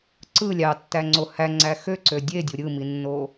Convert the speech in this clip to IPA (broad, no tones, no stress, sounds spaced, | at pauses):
ǀ ɯ lʲ ɑ tː æ ŋ͡ǀ o h æ ŋ͡ǀ æ x ø ǀ ø dʲ e dʲ u ɾʲ ɯ m i nː o